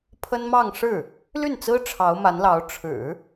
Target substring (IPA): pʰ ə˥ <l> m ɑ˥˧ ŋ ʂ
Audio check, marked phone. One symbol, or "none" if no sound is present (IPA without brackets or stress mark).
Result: n